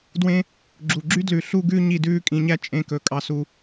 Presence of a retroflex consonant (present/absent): absent